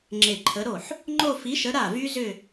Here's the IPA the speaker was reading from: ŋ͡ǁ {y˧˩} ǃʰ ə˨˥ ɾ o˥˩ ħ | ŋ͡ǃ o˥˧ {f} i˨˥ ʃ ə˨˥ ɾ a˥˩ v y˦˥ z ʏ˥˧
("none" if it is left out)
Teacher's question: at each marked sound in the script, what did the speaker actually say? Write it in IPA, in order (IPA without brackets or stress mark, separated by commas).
e˧˩, f